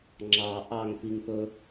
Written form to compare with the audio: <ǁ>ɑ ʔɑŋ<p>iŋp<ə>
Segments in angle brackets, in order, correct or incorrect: incorrect: ŋ͡ǁ, correct, incorrect: ɵ

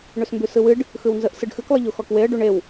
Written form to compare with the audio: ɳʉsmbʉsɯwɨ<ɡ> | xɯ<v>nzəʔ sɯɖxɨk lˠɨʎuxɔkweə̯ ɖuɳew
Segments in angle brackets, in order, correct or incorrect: incorrect: ɖ, incorrect: w

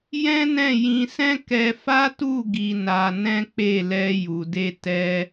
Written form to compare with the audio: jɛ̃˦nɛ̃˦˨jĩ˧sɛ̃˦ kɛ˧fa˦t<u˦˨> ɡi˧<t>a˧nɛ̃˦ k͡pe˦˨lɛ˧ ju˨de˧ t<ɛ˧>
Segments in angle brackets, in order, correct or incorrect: correct, incorrect: n, correct

